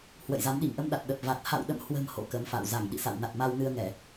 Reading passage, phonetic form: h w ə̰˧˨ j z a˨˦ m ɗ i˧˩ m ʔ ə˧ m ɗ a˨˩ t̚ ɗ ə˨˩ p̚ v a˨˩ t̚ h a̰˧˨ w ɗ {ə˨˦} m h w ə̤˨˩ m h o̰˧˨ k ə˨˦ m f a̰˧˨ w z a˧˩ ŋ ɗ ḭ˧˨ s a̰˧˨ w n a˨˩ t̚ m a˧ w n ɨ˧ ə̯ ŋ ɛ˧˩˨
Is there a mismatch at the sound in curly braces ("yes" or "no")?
yes